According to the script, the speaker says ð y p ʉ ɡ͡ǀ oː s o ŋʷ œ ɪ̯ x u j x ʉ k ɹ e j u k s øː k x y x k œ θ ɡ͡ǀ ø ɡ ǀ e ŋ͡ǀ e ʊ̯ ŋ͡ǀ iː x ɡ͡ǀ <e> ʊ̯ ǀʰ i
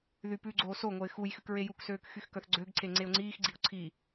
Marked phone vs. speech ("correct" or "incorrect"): incorrect